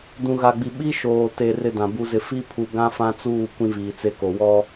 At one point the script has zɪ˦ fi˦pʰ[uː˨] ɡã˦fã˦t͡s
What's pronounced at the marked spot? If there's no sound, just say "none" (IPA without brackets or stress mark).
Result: u˨